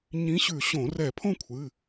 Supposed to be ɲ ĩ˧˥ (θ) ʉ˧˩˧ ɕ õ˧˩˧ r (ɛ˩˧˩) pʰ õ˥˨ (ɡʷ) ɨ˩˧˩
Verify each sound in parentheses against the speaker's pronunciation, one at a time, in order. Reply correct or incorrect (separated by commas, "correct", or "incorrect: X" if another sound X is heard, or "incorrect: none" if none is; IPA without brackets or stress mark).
incorrect: ɕ, incorrect: ɛ˧˩˧, incorrect: kʷʰ